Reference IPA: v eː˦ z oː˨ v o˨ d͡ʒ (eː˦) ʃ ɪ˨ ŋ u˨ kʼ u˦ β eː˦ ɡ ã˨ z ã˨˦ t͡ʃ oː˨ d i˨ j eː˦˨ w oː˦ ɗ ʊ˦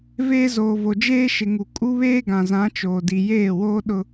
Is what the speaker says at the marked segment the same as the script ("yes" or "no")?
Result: yes